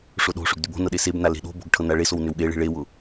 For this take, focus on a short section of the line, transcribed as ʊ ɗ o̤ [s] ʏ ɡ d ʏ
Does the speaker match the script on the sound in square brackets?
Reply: no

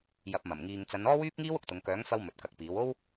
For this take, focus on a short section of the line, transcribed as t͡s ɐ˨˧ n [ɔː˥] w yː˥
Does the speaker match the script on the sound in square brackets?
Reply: yes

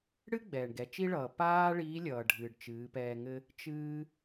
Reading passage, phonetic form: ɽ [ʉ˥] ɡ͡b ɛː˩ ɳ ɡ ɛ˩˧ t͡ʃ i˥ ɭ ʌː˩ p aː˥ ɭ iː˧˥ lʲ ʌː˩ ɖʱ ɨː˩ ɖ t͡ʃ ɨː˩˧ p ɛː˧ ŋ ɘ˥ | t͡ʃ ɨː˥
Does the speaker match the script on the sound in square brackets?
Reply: no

